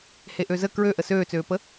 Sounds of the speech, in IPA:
h e ʔ ø z ə k ɹ ø ʔ ə s øː t͡s øː p ə

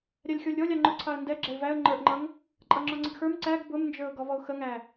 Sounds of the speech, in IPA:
ɾʲ æ lʲ xʲ ɔ lʲ ɾʲ ɔ lʲ ɑ ŋ͡ǃ ʊ ǀʰ ɑ ə̯ n d ɛ ɡ͡ǁ ɛ ɪ̯ v æ ə̯ ŋ͡ǃ ə˞ ʔ ŋ͡ǃ ʌ ŋ | ǃʼ ʌ ŋ͡ǁ ɔ ŋ͡ǀ ɪ ɡ x ə˞ m ǀ æ ɡ b ʊ m n d͡ʒ ə˞ ʊ̯ ɡ ɔ v ɔ ʊ̯ x ə ŋ æ

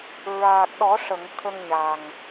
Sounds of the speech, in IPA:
ɹ aː˨˩ k̚ ɗ ɔ˨˩˦ ʂ ə˨˩˨ ŋ t̪ʰ ə˧ ŋ ɲ a˨˩ ŋ

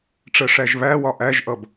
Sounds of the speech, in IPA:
ʈ͡ʂ ɜ ʂ æ ʒ β æ w ɒ ʔ æ ʒ ʔ ʌ b

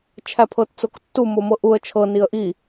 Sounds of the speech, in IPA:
t͡ʃʰ æ pʰ ɤ t t͡s o k tː u m o m ɤ ʔ u ə̯ t͡ʃʰ ɤ n i ə̯ ʔ i

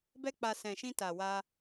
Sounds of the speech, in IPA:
b ɛ˦ k͡p a˧ s ɛ̃˨ ʃ ĩ˧ t a˨ w a˧

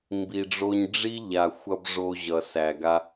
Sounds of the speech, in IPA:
m b i˨ ɖ͡ʐ o˧ ɲ ɖ͡ʐ i˦ ʎ a˨ xʷ ʌ˧ b ʐ o˧ ʑ ʌ˨ s æ˨ ɡ a˧

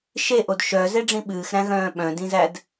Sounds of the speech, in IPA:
ʃ e ʔ o d ʃ œ z e ɖ͡ʐ ĩ ɓ ɨː x ɾ æ̃ ɣ œ̃ː ɓ œ̃ d ĩ z æ d

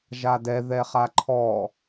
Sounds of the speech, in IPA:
ʒ a d ɛ ð ɛ χ a ǃʰ ɔ

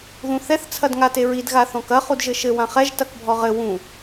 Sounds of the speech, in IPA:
ð ũ θ ɛ θ t͡sʰ ɐ d ŋ a t e ɹ i d ɣ a θ ɔ̃ k ɐ χ u d ʒ ɘ ʃ ɘ w ã χ ɛ ʒ t ɐ k bʱ ɔ ʁ ɘ w ũ

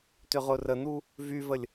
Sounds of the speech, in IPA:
t ʏ ʁ ʊ r ə n̪ u | v y v ə lʲ

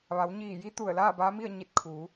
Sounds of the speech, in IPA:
ʋ a˩˧ w ɲ iː˧˩ j i˧˥ t̪ u˧˩ ə̯ l aː˥˨ b aː˧˥ m i˥˨ ə̯ ɲ i˧ t̚ kʰ u˩˧

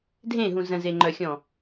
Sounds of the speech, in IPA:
dʱ ẽ ɦ ũ z ə̃ z e ŋ͡ǃ œ xʲ ɔ̃

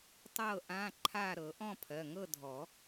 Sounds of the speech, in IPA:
tˤ ɤ˥˨ ʔ ã˧˥˧ ǃʰ a˥˨ ɾ ɤ˨˩˦ ʔ ɔ̃˥˨ pʰ ɜ˩˧˩ ŋ ɤ˥˨ dʱ ɔ˨˩˦

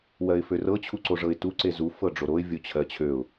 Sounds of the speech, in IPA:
w ɜ ɪ̯ f ø r ɤ t͡ɕʰ u ǀ o ʐ ɤ ɪ̯ t u ǀ e z u f ɤ ɖ͡ʐ o ɾ o ɪ̯ vʲ o t͡ɕʰ ɜ t͡ɕʰ ø ʊ̯

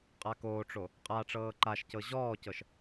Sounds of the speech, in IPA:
qʼ a k oː ʈ͡ʂ o | qʼ a ʈ͡ʂ ɤː ǃ a ʃ c ɤ ʑ ɔː c ɤ ʃ

